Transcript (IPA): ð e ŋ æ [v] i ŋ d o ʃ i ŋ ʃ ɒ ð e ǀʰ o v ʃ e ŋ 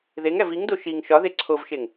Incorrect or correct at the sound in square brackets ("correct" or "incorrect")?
correct